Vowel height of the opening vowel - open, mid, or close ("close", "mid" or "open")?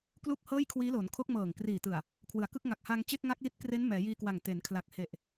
close